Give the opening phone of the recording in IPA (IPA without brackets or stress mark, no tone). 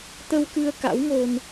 t̪